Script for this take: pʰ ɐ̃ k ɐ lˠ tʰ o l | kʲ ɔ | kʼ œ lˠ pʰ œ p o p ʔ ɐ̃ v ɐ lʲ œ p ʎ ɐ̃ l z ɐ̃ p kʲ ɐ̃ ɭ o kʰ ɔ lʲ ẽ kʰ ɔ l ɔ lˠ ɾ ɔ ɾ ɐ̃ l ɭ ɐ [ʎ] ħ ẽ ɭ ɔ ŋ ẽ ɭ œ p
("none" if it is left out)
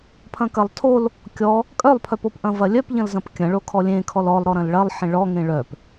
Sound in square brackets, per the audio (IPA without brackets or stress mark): lˠ